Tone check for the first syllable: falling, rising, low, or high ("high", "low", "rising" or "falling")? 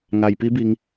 low